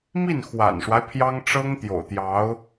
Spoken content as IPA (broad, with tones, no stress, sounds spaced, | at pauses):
m i˥˩ n x w a̰˨˩ n ʂ w a˦ ɪ̯ pʰ j ɑ˥ ŋ ʈ͡ʂ ɤ˥ ŋ t̪ j o̰˨˩ ʊ̯ t̪ j ɑ˧˥ ʊ̯